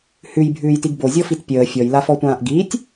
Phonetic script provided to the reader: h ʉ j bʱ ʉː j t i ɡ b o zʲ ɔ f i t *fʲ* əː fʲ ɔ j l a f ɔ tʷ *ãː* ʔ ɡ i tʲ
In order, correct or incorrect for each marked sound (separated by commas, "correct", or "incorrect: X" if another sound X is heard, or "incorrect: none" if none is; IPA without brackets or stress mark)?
incorrect: pʲ, correct